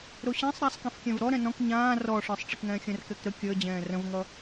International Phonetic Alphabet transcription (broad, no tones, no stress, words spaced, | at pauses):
ɾoɕĩsˤ ɾasˤkĩfkʲɛ̃v ɾɔ ɾɛ̃nɔ̃k ɲãː rɔʂə˞sˤ ʈ͡ʂɪkŋɛ̃ːxʲə̃r kɛkɾə kʲəː d͡ʑɛ̃ːrə̃vŋʌ